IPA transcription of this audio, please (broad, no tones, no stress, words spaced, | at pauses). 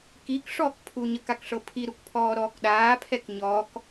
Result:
kik ʂɔːkpʰuɲək akʂɤpʰi ɾukpʰɔːɾɔːkɗaː pʰɛkɲɔk